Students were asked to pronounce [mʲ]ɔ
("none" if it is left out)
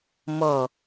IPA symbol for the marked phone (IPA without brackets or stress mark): m